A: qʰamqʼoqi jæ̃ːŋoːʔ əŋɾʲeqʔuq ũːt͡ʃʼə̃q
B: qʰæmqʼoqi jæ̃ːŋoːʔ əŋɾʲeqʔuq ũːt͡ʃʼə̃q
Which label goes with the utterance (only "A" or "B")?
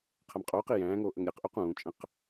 B